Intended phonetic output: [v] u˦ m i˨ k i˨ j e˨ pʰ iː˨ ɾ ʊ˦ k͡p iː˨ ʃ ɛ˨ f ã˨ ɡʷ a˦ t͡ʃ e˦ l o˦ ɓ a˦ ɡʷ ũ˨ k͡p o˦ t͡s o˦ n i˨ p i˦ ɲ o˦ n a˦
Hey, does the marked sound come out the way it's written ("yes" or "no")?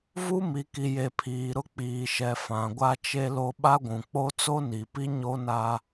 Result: yes